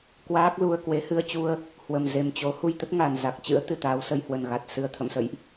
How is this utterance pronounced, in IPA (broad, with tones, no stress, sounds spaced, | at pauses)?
k w aː˦˥ k̚ l u˧ ə̯ k w e˨˦ h ɨ˧ ə̯ t͡ɕ u˧ ə̯ | h w ə˨˩ m z e˨˩ m t͡ɕ o˨˦ h u˧ j t̪ ə˦˥ t̚ ŋ a˨˩ n z a˨˩ k̚ t͡ɕ ɨ̰˧˥ ə̯ t̪ ɨ˨˩ t̪ aː˨˦ w s ə˧ j h w ə˨˩ n ɣ a˨˩ t̚ s ɨ˨˩ ə̯ t̪ʰ ə̰˧˨ m s ə̰˧˨ j ʔ